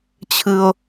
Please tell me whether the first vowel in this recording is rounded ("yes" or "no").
no